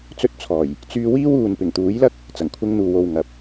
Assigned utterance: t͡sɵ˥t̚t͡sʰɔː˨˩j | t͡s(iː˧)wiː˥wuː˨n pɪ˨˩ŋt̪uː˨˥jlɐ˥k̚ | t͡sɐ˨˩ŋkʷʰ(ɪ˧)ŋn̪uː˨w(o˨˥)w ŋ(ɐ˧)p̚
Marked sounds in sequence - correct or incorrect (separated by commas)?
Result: incorrect, correct, incorrect, incorrect